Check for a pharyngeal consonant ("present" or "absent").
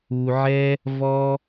present